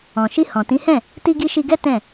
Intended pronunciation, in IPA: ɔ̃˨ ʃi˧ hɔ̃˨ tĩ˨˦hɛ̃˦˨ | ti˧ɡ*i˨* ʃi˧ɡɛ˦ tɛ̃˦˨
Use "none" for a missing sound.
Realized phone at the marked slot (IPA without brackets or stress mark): i˧